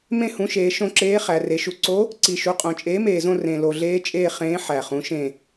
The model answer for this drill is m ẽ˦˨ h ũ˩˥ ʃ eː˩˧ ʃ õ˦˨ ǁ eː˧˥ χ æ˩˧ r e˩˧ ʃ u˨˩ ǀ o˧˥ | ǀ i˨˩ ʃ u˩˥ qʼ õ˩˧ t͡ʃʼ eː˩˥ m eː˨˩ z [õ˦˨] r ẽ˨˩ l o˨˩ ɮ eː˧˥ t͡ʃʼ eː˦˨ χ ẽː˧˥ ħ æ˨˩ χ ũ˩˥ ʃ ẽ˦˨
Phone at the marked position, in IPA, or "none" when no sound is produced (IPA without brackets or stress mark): õ˦˨